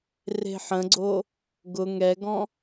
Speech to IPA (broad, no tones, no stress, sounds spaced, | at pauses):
r e̤ ħ ə̃ ɡ͡ǀ o | ɡ ʊ ŋ ɛ ɡ ɔ̃